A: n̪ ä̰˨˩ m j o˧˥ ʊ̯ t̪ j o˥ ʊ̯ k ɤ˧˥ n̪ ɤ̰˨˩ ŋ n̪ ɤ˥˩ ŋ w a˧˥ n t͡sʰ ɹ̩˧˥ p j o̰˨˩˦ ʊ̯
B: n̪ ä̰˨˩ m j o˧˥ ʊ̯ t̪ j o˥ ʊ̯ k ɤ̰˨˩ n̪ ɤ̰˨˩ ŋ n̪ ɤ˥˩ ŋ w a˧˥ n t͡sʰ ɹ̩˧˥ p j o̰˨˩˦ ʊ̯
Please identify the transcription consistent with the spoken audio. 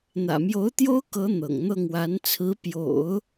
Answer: A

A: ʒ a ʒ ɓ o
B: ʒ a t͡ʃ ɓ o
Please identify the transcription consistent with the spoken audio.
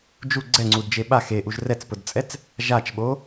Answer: B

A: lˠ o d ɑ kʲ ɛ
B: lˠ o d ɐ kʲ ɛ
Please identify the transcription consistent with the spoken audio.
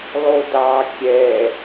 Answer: A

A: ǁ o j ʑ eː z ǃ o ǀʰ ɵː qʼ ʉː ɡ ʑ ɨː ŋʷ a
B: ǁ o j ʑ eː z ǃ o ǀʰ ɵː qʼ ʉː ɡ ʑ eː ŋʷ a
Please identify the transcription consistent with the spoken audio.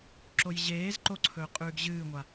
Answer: A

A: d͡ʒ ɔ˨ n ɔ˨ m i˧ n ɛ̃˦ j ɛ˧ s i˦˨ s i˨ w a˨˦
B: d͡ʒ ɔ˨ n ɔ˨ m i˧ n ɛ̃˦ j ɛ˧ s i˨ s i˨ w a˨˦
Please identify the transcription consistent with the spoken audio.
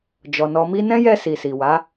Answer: B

